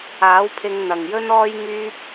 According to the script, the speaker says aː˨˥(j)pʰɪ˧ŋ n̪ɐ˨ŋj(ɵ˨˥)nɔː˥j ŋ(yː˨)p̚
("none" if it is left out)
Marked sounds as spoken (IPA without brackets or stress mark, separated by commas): w, ɵ˥, yː˥